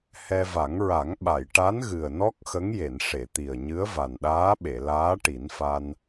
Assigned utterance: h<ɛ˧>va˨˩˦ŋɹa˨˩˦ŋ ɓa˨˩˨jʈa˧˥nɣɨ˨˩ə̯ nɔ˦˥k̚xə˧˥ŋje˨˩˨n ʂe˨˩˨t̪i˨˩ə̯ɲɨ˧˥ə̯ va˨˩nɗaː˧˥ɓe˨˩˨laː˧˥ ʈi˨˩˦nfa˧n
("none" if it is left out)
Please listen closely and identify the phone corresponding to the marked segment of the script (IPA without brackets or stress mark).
ɛ˧